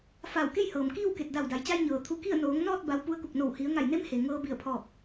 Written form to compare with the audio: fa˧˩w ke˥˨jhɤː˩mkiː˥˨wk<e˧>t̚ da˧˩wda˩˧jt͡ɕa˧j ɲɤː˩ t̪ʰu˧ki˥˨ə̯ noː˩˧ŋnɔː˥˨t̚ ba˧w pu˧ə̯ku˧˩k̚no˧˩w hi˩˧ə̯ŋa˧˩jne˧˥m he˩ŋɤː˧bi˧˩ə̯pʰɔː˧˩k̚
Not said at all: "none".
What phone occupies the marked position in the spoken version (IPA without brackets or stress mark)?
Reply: e˧˩